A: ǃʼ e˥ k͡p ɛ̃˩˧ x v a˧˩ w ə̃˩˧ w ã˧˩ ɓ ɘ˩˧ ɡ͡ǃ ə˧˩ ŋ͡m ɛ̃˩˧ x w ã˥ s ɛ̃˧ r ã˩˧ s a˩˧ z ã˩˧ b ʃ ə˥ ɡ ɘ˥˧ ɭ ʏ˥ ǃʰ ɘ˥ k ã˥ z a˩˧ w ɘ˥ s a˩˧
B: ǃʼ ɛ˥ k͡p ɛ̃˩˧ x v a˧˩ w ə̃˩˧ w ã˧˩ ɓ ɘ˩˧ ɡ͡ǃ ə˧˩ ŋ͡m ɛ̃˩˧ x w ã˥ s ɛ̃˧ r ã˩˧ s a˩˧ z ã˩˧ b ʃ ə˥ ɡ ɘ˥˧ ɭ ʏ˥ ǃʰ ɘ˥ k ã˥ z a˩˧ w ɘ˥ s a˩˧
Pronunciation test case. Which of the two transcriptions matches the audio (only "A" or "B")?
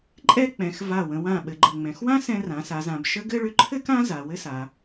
B